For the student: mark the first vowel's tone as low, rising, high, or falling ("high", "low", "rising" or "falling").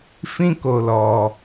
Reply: high